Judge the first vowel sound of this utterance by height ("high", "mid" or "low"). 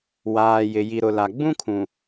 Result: low